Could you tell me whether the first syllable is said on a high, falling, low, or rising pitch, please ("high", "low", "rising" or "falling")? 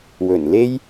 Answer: low